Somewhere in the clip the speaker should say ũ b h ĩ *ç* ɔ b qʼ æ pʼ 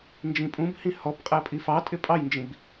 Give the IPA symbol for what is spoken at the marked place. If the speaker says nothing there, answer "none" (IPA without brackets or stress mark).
h